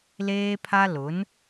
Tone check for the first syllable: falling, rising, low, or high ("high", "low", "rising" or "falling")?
high